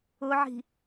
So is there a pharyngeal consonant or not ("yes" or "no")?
yes